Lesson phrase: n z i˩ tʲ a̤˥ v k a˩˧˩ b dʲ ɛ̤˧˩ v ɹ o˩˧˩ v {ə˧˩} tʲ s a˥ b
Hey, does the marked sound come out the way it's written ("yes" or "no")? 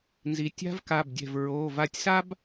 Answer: no